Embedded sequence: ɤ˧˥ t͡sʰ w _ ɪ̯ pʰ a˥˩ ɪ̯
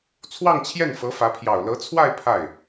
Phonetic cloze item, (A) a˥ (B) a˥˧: B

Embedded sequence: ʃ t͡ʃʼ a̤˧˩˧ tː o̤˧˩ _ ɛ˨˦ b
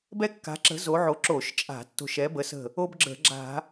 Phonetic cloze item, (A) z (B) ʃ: B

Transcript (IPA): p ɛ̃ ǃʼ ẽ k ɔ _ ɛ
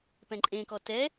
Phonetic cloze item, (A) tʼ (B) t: B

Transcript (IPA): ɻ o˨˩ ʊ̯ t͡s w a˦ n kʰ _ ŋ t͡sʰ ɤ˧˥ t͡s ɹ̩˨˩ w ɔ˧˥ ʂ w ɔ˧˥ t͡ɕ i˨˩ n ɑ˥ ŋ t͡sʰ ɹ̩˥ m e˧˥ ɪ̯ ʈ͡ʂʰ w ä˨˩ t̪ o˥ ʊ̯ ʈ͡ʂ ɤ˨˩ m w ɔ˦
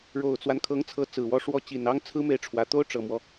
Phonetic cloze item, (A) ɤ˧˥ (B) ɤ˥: A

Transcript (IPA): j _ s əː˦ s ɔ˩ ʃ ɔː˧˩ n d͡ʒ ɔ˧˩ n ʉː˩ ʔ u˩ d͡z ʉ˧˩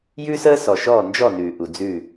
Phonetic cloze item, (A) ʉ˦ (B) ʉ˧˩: A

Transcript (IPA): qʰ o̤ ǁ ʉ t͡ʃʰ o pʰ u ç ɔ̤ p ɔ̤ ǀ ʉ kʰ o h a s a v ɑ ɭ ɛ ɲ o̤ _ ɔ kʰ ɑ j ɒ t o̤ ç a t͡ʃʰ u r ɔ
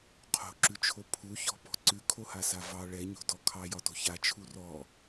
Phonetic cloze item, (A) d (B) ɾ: A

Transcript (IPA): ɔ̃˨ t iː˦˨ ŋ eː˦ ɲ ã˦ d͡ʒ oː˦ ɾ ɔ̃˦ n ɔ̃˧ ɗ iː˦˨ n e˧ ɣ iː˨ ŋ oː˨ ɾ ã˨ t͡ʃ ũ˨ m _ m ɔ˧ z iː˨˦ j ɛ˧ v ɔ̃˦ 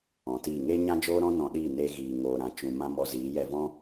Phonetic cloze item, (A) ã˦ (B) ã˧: A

